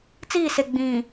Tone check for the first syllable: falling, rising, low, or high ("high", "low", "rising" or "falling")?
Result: falling